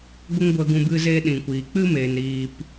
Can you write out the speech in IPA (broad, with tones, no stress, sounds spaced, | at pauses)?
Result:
ɡʷ ə˦ ŋ ɡʷ ə˧ ɡ ũ˧ b ɨ˦ z eː˦ ɗ ĩ˨ kʷ iː˨ k͡p ɨ˦ m eː˨ n ɾ iː˧ p